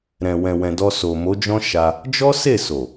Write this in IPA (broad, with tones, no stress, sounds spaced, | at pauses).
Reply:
ɾ ɛ̃˨ w ɛ̃˨ w ɛ̃˨ d ɔ˧ s o˨ m o˨˦ d͡ʒ ɔ̃˦ ʃ a˧ | d͡ʒ ɔ˦ s e˦˨ s o˨